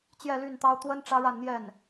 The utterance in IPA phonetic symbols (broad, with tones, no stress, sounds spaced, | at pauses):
t͡ɕ j ɛ˥˧ l y˥˩ n t̪ ɑ˥ ʊ̯ t̪ w ə˥ n ʈ͡ʂ ä˥ ɻ a˥˧ n n̪ j ɛ˥˩ n